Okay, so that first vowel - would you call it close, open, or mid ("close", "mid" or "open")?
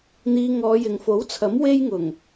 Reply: close